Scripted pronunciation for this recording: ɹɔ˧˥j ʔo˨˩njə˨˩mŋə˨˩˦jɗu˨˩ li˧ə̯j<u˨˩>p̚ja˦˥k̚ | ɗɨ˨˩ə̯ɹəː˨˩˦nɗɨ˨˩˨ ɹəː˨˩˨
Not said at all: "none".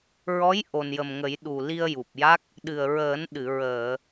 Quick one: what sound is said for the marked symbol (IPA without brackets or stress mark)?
u˨˩